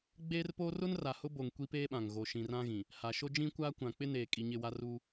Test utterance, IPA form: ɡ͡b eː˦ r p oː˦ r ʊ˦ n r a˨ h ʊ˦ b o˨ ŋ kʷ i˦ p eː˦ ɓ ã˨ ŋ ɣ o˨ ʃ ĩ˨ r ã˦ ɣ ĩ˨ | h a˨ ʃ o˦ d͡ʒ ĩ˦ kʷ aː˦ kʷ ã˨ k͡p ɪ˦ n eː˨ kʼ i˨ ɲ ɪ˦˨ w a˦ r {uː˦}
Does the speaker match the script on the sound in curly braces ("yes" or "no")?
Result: yes